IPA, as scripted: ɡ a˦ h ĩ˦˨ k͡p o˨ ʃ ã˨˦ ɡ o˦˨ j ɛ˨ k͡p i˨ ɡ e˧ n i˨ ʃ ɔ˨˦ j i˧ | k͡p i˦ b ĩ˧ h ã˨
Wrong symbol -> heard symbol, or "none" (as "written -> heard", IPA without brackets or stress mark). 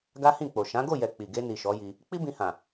none